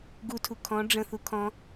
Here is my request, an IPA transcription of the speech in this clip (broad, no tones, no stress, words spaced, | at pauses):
ɡutʰu kʰɔ̃ ɖ͡ʐə̃θu kʰɔ̃